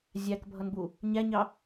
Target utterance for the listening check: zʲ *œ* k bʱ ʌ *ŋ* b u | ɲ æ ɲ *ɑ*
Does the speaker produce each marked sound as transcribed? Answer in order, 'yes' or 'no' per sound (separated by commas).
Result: no, no, yes